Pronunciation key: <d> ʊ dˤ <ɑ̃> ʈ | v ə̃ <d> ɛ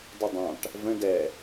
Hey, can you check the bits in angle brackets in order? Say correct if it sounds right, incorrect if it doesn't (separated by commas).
correct, correct, correct